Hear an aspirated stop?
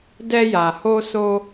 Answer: no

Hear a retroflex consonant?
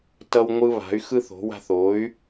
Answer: no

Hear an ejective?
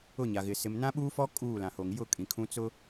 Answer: yes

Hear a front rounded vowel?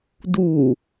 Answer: no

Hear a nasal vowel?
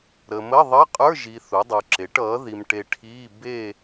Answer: no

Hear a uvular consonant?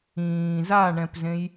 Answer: no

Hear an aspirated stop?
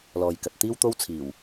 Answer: yes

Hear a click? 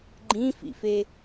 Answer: yes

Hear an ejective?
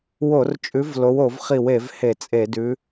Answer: yes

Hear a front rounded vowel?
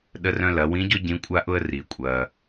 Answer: yes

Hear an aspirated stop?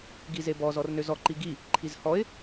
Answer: yes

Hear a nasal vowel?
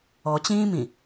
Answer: yes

